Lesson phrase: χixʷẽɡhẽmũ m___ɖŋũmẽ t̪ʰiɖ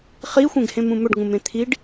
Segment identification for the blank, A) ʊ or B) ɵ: B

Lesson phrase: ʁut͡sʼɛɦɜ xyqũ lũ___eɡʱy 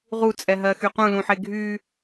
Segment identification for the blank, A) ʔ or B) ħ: B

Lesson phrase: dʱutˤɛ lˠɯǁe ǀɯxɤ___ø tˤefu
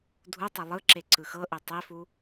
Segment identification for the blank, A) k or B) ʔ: B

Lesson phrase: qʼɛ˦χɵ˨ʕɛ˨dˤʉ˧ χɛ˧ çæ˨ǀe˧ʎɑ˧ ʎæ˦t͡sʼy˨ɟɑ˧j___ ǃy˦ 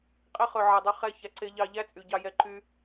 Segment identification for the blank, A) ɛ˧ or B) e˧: A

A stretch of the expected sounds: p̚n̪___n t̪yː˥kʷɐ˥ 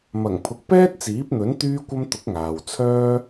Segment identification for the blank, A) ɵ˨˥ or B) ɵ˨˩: A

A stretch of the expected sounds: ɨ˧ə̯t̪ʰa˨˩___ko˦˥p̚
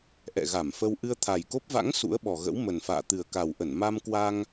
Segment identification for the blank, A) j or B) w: A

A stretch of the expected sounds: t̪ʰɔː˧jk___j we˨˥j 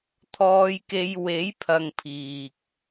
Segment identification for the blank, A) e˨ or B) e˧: B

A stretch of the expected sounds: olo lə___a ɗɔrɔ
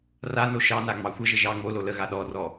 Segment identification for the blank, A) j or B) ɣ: B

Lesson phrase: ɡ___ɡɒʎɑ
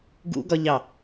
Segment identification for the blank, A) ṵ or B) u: A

